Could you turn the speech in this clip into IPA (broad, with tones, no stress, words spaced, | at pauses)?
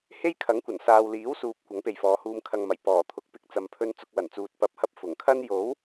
he˥jkʰɐ˨˥ŋkʷɐ˨˩n saː˨wliː˨˥w suː˨p̚ kʷɐ˨˥ŋpe˨jfɔː˨˧huː˧m kʰɐ˨ŋmɐ˨˩j pɔː˨˩t̪ʰʊ˨˥k̚ pɪ˨k̚t͡sɐ˨mpʰɵ˧n t͡sʊ˧k̚wɐ˨˩nt͡suː˨t̚ pɐ˨˥p̚hɐ˧p̚ fʊ˨˩ŋkʰɐ˥n jo˨˥w